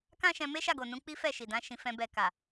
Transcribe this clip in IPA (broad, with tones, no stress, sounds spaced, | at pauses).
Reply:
k ã˦ ʃ ɛ̃˧ m e˦ ʃ a˦˨ ɡ o˨ n ũ˧ k͡p i˦ f ɛ˦˨ ʃ i˨ d ã˨˦ ʃ ĩ˧ f ɛ̃˧ b ɛ˨ k a˨